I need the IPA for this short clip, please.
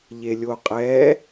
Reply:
ʎ e lʲ o qʼ ɛ

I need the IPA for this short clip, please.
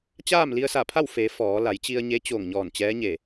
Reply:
t͡ɕ aː˥˨ m l i˧ ə̯ s a˧˩ pʰ a˥˨ w f e˩˧ f ɔː˩˧ l a˩˧ j t͡ɕ i˧ ə̯ ɲ e˧˥ t͡ɕ o˧˩ ŋ ɲ ɔː˧˩ n t͡ɕ ɛː˧˥ ɲ e˧˩

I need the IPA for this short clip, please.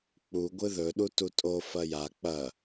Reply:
k͡p u ɡʷ ɨ ð ɵ ɗ u t u tʼ o f ɐ j a k͡p ɐ

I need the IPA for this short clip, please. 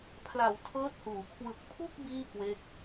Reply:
pʰ l a˩˦ w tʰ ɤː˦˥ t̚ h uː˩˦ kʰ w ɯ˨˩ k̚ pʰ u˥˩ k̚ b iː˥˩ k w e˦˥ k̚

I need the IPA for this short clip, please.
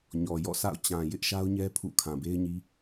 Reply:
ɲ ɔ˨ j ɔ̰˦˨ sʰ a̰˦˨ ʊ̯ t͡ɕ ã˨ j ɪ˦ ʔ ʃ a˦ ʊ̯ ɲ ɛ˦ pʰ ṵ˦˨ kʰ ã˨ b e˦ ɪ̯ ɲ i˦

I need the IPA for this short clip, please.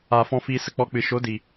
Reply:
aː˧ f ɔ̃˦ f iː˦ s ə˦ k͡p ɔ˦ k͡p ɨ˧ ʃ o˨˦ d i˨

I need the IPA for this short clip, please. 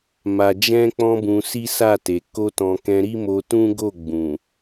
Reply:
m a˨ d͡ʒ ɛ̃˧ k͡p ɔ̃˧ b ũ˧ s i˦ s a˦˨ t e˨ k o˧ t ɔ̃˨ k ɛ̃˧ ɾ i˦ m o˧ t ũ˦ ɡ o˦˨ ɡ͡b ũ˨

